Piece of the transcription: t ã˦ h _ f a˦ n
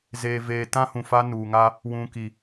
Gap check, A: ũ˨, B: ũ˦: A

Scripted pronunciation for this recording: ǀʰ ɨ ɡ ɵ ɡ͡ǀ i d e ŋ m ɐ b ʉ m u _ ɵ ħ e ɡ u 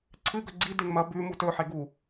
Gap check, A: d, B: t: B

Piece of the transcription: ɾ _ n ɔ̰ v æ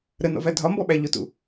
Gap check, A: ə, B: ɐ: A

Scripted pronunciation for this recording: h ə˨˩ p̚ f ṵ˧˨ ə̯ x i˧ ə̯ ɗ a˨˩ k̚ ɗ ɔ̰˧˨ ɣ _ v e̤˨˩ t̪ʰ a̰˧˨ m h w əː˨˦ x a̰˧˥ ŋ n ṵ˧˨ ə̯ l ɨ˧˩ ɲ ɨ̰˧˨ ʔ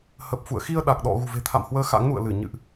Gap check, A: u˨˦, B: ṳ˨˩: B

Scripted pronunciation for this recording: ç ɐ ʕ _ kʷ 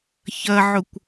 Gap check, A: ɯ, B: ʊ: B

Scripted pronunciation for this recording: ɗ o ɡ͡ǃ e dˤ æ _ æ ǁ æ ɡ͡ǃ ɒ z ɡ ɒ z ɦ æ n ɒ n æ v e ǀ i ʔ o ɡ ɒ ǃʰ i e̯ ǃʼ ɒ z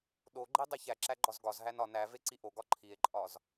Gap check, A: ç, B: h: A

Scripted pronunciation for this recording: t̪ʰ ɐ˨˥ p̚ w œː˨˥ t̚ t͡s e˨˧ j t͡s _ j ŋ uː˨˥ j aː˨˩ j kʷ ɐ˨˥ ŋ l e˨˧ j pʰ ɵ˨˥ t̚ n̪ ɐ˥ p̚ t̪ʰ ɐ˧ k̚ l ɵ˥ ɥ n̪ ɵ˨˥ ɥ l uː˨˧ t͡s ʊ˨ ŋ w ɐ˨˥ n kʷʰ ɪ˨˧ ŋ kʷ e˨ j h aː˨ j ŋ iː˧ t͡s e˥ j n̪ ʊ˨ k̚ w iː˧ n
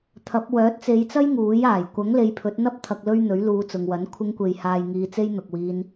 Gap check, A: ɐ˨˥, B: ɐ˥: B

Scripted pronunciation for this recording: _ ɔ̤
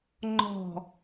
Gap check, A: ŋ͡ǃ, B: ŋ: A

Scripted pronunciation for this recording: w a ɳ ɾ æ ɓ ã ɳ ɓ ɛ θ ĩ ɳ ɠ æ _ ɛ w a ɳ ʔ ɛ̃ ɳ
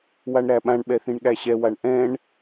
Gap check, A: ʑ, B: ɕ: B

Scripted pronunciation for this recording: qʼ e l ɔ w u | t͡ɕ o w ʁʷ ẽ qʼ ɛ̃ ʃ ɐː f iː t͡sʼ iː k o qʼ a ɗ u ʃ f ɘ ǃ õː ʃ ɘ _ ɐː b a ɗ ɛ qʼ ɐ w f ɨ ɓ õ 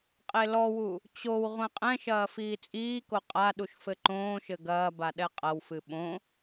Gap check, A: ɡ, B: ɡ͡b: A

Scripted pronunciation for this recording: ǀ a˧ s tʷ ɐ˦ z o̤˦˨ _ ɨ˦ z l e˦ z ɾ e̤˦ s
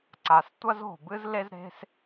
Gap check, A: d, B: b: B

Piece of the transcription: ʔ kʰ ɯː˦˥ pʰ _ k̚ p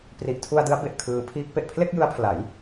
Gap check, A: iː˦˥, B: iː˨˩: A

